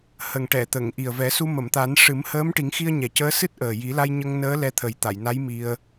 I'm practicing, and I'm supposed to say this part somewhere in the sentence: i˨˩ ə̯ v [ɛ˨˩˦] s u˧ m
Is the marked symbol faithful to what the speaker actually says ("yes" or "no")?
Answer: yes